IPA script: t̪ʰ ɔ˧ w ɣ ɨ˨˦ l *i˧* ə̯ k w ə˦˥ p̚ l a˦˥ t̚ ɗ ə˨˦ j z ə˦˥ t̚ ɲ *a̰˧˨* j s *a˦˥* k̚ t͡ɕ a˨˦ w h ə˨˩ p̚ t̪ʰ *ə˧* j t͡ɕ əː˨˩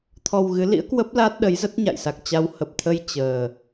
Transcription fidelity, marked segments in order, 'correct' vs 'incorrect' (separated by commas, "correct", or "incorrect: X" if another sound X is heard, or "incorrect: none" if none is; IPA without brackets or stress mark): incorrect: ḭ˧˥, correct, incorrect: a˨˩, correct